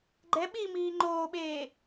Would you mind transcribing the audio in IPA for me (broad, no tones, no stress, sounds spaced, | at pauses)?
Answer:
ɡ͡ǃ ɛ ɓ i m iː ŋ͡ǃ oː ɓ eː